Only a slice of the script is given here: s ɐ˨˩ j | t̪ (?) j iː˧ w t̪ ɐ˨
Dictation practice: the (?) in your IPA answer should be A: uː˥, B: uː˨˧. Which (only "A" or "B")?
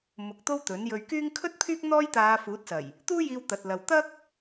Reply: A